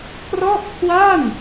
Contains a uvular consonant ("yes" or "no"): no